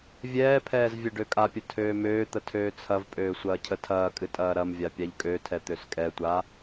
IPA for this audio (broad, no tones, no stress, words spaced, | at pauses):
vʲɛːpʰɛːz vʲɛɖøkʼapʲə tʰøːmøːt̪ə tʰøːt͡sʰɐvpʼøː sʷɐːcʰətʰɐːkʼɨ tʼɐːɾɐmvʲa pʲaʎkʼøtʰɛ t̪øskʼɛtʷa